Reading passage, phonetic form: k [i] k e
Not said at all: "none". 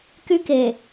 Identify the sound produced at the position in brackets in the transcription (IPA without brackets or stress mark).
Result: y